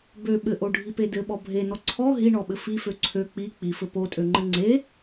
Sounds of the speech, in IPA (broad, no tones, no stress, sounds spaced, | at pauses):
b ø ɓ ɘ ʔ o ɖʱ i p e d ɘ ɓ ɔ bʱ e n ɔ ǀʰ ɔ ɦ i ɳ ɔ ɓ ɘ f i f ø ǀʰ ø k͡p i k͡p i f ɘ p o tʼ ø ŋ͡ǃ ɘ ŋ͡ǀ e